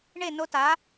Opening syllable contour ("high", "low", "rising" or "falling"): falling